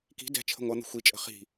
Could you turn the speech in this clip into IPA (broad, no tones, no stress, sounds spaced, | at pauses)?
k i̤ d ɛ̤ t͡ʃʰ ə̤ ŋʷ ʌ n̪ ə̤ xʷ i t͡ʃʼ ə̤ χ i̤